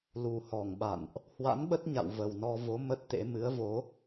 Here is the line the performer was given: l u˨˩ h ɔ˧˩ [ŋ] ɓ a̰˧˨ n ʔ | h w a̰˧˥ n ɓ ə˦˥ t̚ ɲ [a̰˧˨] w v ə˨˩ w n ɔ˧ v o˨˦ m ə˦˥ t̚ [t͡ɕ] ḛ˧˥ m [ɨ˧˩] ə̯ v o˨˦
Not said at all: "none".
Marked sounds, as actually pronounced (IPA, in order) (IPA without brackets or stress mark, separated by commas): ŋ, a̰˧˨, t̪, ɨ˨˦